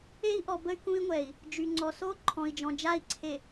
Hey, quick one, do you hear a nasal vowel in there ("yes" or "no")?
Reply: yes